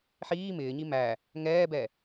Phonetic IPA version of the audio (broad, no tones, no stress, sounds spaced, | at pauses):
ħ iː m ɪː ɲ i m æ | ŋ ɛː b ɛ